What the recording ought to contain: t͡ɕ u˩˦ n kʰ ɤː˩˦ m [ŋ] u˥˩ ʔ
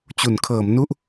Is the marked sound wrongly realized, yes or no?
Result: yes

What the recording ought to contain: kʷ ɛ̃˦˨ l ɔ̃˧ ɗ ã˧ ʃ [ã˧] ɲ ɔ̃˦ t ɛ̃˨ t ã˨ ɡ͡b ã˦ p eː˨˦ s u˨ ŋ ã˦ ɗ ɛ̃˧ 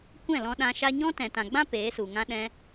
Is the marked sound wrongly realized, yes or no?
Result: yes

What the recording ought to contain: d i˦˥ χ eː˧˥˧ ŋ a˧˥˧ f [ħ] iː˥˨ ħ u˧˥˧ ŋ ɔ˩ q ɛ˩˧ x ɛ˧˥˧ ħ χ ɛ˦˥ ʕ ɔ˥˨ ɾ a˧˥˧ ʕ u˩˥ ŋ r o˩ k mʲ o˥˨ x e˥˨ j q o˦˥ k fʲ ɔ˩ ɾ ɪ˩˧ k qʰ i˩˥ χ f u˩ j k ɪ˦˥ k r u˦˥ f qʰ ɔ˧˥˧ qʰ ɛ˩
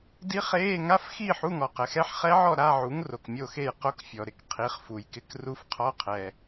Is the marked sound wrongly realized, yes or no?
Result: yes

